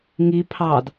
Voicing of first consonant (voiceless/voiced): voiced